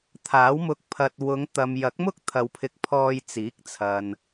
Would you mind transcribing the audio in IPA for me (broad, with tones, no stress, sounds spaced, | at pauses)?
t̪ʰ aː˨˥ w m ʊ˧ k̚ pʰ ɐ˨ t̚ w ʊ˨˧ ŋ t̪ ɐ˨ m j ɐ˨˥ k̚ m ʊ˥ k̚ t̪ʰ ɐ˧ w pʰ ɪ˧ k̚ pʰ ɔː˧ j t͡s iː˨˥ k̚ t͡sʰ ɐ˨ n